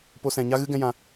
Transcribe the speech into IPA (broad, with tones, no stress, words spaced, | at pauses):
po˧sɛ̃˨ɲa˦ɣɨ˦ ɡɛ̃˦jã˧